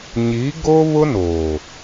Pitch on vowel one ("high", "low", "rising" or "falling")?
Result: rising